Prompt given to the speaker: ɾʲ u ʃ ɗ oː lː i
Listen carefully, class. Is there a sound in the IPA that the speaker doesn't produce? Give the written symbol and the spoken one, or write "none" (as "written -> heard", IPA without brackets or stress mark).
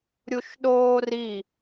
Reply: lː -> r